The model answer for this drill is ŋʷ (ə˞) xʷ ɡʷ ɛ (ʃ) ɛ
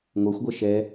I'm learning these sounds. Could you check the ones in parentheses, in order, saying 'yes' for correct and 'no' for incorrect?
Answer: yes, yes

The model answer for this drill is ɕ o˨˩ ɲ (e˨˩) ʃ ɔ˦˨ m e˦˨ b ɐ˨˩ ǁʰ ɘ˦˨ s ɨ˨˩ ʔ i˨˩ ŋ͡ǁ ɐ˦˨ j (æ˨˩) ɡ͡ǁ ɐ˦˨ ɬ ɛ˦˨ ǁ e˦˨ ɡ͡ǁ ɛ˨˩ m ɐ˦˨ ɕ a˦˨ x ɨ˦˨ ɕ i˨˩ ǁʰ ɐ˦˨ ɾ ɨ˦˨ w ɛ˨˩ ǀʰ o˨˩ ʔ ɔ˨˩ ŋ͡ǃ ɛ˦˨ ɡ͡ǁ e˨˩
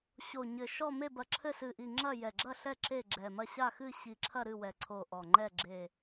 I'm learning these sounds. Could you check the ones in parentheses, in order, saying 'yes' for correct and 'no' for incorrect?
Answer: no, no

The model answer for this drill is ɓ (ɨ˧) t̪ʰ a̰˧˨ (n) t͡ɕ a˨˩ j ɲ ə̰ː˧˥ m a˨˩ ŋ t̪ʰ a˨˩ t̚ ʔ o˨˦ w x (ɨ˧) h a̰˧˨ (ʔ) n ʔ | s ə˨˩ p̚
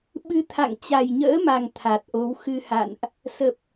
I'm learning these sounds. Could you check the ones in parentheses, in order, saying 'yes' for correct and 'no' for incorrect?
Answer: yes, no, yes, no

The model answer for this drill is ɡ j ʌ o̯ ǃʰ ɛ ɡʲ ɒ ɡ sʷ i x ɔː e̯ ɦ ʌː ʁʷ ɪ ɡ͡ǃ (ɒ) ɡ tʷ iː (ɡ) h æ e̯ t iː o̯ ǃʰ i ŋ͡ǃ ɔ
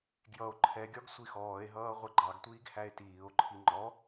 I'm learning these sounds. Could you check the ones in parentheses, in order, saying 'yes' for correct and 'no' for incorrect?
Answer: no, yes

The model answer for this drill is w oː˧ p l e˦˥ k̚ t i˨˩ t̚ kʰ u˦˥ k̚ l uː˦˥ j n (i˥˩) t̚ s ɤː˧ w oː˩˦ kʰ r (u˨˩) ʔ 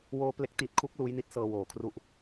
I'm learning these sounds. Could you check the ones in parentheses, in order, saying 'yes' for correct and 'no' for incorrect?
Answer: no, no

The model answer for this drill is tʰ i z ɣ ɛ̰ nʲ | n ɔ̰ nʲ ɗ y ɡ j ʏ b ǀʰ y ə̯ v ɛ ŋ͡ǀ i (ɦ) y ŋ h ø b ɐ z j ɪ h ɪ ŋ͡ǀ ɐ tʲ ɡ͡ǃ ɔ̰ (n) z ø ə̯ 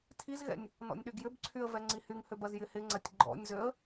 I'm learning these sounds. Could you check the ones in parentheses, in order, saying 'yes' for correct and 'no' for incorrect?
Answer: no, no

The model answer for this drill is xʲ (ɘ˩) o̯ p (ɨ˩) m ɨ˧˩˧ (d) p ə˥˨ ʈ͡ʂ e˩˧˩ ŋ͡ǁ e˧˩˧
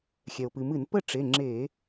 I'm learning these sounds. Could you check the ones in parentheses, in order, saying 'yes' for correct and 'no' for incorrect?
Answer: no, yes, no

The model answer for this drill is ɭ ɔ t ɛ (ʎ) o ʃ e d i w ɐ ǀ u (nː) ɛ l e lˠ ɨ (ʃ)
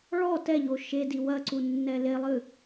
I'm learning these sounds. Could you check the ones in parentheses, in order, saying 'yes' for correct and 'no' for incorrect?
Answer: yes, yes, no

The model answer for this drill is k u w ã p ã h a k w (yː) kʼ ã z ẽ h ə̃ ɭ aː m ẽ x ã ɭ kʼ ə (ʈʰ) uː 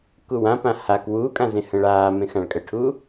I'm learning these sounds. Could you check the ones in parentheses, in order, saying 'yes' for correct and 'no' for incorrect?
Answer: no, yes

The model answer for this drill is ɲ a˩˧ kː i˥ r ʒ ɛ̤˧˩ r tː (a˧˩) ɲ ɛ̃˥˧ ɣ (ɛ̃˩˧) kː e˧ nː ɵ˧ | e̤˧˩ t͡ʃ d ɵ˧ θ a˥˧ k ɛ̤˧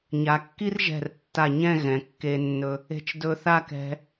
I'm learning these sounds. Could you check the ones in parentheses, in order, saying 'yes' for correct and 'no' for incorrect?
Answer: yes, yes

